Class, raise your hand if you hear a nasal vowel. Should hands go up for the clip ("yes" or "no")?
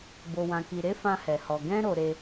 yes